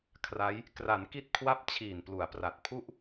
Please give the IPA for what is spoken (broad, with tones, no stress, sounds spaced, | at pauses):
kʰ r a˦˥ j | k r a˩˦ n k i˦˥ t̚ kʰ w a˦˥ p̚ t͡ɕʰ iː˨˩ n p l u˩˦ a̯ p r a˨˩ t̚ pʰ u˦˥ ʔ